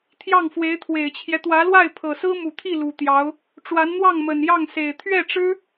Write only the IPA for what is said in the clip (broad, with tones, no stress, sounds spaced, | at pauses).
t̪ʰ j ɑ˥˩ ŋ f w e˧˥ ɪ̯ t̪ʰ w e˨˩ ɪ̯ t͡ɕʰ j ɛ˦ t̪ w ä˧˥ l w a˥˩ ɪ̯ pʰ ɤ˨˩ s ɹ̩˥ m u˨˩ t̪ʰ i˥˩ l u˨˩ t̪ j ɑ˧˥ ʊ̯ | ʈ͡ʂ w a˧˥ n n̪ w ɑ˥˩ ŋ m ə˨˩ n j ɑ˥˩ ŋ s e˨˩ ɪ̯ t̪ʰ ɥ ɛ˥˩ ʈ͡ʂ ɻ̩˥